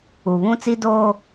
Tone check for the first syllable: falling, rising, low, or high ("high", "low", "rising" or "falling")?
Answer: low